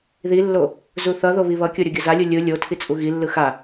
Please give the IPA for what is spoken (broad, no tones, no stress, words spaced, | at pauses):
ðilːo | zuθʌðo βiβʌkʲo ɾʲoɡʲʌzalʲu lʲɯ lʲo tʰit͡sʼuɣilːɯ xa